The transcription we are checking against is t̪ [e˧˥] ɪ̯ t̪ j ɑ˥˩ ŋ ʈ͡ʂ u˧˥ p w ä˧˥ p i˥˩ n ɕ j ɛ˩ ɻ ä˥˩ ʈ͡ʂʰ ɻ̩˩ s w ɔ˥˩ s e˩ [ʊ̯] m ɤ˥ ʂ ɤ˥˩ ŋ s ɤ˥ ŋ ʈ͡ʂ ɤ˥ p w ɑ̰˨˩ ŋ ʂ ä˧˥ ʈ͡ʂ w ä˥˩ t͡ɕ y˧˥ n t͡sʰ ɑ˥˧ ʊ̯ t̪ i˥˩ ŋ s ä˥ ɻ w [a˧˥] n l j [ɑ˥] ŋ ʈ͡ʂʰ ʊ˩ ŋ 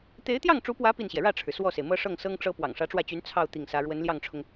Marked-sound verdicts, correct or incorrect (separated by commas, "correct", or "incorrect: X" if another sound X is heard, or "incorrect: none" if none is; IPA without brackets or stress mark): correct, incorrect: ɪ̯, incorrect: ə˧˥, incorrect: ɑ˥˩